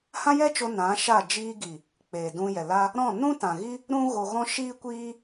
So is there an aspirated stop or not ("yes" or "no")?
no